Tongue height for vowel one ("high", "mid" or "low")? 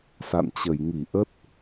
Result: low